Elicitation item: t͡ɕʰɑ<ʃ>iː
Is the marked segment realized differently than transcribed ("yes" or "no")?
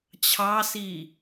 yes